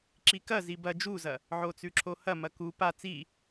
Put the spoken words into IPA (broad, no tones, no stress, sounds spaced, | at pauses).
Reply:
ǁ i k ɐ z i b ɐ d͡ʒ u z ɐ | ʕ o t͡s ʉ ǁʰ o h ɐ m ɐ k u p a t͡s i